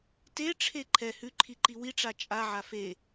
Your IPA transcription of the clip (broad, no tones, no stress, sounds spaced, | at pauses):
t e ʈ͡ʂʰ e ǃʰ ɛ h ʉ ǃʰ i ǃ i w i ʈ͡ʂ a t͡ʃʼ a ʕ a f e